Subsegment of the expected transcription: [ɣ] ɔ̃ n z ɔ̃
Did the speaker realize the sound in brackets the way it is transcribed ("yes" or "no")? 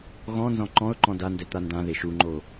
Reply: yes